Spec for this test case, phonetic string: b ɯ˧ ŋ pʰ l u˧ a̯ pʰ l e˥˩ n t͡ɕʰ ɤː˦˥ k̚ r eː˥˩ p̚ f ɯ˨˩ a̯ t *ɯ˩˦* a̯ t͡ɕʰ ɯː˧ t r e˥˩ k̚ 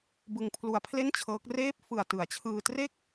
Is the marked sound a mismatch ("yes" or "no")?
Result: no